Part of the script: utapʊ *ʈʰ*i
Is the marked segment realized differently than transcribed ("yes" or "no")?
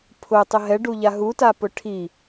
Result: no